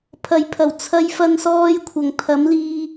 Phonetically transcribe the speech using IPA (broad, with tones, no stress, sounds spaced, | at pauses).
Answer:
pʰ ɐ˨ j pʰ ɐ˨˩ w t͡sʰ ɐ˧ j f ɐ˧ n s ɔː˧ j kʷʰ ɐ˨ ŋ t̪ʰ ɐ˨˥ m l iː˧